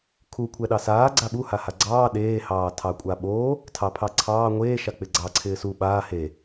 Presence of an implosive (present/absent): present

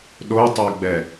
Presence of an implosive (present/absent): present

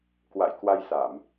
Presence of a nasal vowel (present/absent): absent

